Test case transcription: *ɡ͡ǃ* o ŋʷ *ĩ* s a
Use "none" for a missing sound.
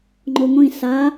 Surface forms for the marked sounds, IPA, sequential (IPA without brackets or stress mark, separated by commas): ŋ͡ǃ, ĩ